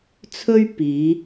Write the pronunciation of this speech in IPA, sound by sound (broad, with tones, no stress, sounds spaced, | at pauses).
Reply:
t͡sʰ ɵ˥ ɥ p iː˨˧